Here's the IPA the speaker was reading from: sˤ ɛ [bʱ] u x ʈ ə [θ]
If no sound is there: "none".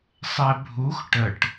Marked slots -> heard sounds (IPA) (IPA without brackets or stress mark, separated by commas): bʱ, ʈ